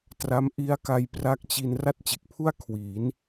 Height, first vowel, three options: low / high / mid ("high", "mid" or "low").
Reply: low